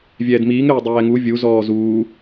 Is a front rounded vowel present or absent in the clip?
present